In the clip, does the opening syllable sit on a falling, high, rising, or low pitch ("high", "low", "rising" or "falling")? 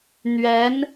rising